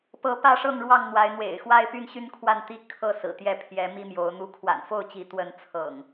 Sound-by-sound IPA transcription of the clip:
pɤ˨˦pä˥˨ʂɤ˥˨ŋɻwɑ˥˨ŋ n̪wa˨˦ɪ̯n̪wḛ˨˩ɪ̯xwa˦ɪ̯ py˥˨nɕy˦nkʰwa˥˨nt̪i˦ kʰɤ˥˨sɹ̩˨˩t̪jɛ˥˨ pʰjɛ˨˦mi˦mjo˨˦ʊ̯ n̪u˨˦kʰwa̰˨˩nfo˥˨ʊ̯t͡ɕi˨˦ t̪wə˨˦nt͡sʰɤ̰˨˩ŋ

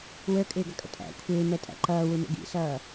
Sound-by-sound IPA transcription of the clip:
wə˞kʼɪːɡʌkʼə̰ tʼæ̰ kʷʰɪːmɛtʼæ̰ ǃʌːwumə̰ ɡḭsʌː

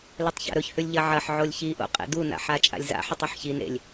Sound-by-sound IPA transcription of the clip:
lɨtˤça̰ɾɵçhʉlʲ ʎɐʕɐħ ʕolʲçiʔo̰ qʼḛduna̰ ħat͡ʃʼa̰lʲza̰ ħɨtˤɵħçin ḛlʲ

